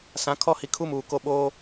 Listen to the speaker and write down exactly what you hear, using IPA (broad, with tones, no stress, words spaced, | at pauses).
sã˨˦ kʰɔ˦ hi˨kʰu˦muː˨ ko˦ ɓoː˦